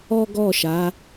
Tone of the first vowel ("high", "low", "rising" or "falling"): high